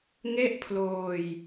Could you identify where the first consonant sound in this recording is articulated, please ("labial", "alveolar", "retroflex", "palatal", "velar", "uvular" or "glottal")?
velar